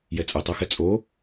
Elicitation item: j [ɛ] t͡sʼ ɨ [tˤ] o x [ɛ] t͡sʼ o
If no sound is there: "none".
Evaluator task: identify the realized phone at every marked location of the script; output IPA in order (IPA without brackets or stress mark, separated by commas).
ɛ, tˤ, ɛ